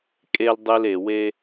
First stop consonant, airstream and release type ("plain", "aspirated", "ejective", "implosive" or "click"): ejective